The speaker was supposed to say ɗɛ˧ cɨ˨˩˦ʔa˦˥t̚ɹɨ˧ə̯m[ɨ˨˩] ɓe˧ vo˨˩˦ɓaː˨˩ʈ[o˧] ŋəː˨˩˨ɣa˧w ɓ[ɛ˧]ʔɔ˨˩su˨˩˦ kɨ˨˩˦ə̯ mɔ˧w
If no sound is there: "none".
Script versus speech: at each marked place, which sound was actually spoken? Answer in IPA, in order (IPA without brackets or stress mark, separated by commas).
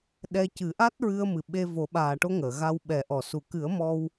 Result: ɨ˨˩, o˧, ɛ˨˩˦